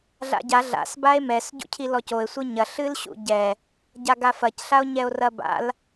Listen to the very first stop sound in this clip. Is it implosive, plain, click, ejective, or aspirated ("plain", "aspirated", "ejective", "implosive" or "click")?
plain